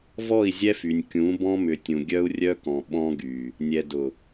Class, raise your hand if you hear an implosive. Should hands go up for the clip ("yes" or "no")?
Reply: yes